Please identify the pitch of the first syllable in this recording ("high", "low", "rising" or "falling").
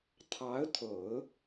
rising